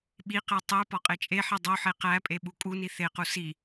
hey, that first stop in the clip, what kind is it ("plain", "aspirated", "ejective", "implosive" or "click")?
implosive